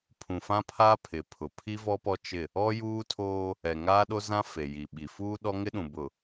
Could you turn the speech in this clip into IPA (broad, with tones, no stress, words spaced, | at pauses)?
pʰũ˨fã˦pʰaː˦ pʰɪ˨pʰʊ˨ pʰi˦vɔ˦pɔ˦ t͡ʃɪ˦˨ | ɔ˦juː˦tʰoː˦ | ɛ˨ ŋaː˦ɗo˦zã˦ fe˨ji˨ ɓi˨fuː˦ɗɔ˦ ŋɪ˦ɗũ˨ bʊ˨